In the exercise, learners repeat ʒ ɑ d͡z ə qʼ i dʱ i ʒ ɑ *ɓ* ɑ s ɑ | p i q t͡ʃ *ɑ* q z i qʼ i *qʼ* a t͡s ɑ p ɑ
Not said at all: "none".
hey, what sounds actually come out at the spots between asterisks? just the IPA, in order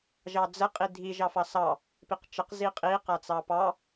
f, ə, q

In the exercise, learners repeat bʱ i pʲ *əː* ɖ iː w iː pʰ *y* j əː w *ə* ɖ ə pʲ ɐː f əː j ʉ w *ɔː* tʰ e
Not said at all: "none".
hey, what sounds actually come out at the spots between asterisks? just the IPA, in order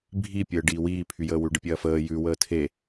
əː, y, ʉ, əː

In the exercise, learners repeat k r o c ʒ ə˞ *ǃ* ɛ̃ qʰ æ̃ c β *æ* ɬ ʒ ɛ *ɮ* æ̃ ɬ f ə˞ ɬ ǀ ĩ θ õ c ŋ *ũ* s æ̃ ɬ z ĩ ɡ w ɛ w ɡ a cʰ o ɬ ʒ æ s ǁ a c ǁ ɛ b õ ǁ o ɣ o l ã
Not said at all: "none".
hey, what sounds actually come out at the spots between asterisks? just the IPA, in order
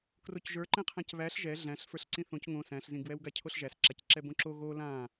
ǃ, æ, ɮ, õ

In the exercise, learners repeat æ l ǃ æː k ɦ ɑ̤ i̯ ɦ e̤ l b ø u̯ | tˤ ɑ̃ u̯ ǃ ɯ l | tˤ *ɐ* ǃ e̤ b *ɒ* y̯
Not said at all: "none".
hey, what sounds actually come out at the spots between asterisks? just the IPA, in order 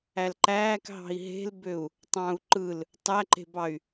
æ, ɑ

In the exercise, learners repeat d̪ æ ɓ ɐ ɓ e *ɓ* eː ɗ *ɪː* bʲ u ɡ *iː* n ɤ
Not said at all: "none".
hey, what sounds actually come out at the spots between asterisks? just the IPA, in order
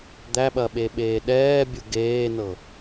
ɓ, ɛː, eː

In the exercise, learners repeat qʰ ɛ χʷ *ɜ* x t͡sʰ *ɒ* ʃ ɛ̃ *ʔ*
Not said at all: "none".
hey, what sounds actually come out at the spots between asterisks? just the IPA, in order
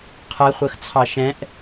ɜ, ɑ, ʔ

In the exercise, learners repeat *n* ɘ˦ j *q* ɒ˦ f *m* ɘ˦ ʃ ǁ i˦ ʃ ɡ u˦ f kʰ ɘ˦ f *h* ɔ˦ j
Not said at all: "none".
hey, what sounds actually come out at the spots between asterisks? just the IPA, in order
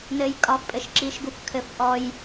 n, kʼ, pʼ, ʔ

